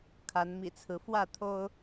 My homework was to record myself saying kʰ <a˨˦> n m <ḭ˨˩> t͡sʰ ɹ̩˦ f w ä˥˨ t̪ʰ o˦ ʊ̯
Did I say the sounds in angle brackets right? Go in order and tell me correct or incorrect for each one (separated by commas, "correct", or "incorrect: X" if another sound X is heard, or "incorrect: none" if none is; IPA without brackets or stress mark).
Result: correct, correct